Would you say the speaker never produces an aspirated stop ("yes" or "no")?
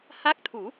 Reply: no